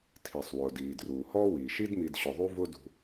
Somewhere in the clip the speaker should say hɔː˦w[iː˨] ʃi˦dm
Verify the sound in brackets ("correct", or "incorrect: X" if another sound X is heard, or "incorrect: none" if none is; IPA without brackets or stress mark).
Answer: incorrect: iː˩